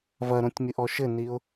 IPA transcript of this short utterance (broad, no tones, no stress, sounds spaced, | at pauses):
v ɐ ɾ õ tʲ mʲ ɨ ʔ ɔ ʃ ɘ n i ʊ̯